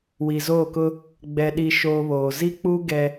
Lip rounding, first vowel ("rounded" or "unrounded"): unrounded